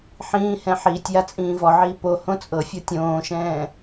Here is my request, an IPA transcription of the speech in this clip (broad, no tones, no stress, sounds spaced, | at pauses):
ħ ĩː h ɛ̃ ħ iː tʲ j a t͡sʼ ĩː v ɔ ʕ iː p o h õ t͡sʼ ɤ fʲ ɤ tʲ õː ʃ ɛ̃ː